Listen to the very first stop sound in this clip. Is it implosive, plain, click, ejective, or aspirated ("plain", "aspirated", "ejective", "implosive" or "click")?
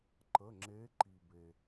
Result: click